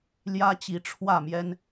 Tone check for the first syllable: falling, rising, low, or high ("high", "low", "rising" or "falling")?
high